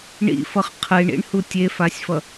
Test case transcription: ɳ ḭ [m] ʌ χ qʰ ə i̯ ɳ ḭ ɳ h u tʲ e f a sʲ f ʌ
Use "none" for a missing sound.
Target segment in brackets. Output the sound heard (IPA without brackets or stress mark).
f